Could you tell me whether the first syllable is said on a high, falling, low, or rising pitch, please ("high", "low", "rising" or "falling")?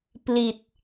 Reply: low